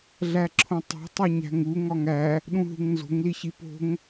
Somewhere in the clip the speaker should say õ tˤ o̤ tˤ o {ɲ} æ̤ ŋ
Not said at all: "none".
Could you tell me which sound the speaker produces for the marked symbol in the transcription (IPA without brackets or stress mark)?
ɲ